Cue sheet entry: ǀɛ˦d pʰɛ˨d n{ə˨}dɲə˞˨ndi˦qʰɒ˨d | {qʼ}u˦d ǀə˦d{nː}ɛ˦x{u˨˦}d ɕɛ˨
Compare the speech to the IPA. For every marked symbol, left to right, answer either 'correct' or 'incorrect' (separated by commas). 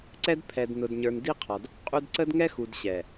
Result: incorrect, correct, incorrect, incorrect